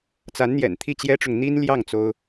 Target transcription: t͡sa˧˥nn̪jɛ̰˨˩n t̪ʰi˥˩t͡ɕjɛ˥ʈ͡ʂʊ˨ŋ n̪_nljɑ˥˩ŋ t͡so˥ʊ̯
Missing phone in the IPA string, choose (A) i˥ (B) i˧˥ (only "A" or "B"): A